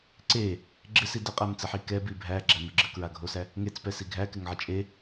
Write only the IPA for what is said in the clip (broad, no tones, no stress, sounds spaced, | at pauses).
ǀ e | ɡ͡ǁ ɪ s i d ə qʼ æ m t͡s ə ħ i k ɛ b i bʱ æ ɡ͡ǁ æ m ɪ ɡ͡ǁ ə k ɹ a ɡʱ o s æ | ŋ e t͡s p ɛ s i ɡʱ æ k ɪ ŋ ʕ ə t͡ʃʼ e